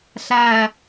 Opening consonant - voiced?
no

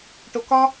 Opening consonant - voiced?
no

